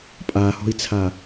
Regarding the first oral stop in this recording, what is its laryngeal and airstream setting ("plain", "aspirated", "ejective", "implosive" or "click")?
ejective